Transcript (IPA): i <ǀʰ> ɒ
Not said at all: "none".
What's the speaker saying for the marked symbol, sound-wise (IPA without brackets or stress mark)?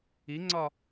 ŋ͡ǀ